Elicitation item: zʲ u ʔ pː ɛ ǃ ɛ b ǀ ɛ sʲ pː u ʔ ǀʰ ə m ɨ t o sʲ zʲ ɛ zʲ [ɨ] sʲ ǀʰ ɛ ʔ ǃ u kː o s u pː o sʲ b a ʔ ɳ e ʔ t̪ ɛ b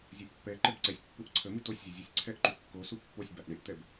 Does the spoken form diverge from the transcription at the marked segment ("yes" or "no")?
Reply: yes